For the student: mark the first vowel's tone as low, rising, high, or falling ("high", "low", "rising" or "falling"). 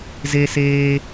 high